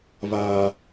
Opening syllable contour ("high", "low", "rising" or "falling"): high